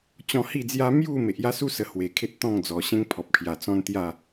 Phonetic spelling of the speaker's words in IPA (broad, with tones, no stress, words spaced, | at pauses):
t͡ɕɔ̃˧hi˥˧d͡zja˦ mju˥˧ me˨ʔja˦su˦sə˨˩ hwe˨˩kʰe˦t̚t̪ɔ̃˥˧ŋd͡zɔ˨˩ ɕẽ˦ŋ pʰɔ˨p̚kʰja˨˩ t͡sɔ̃˦nt̪ja˥˧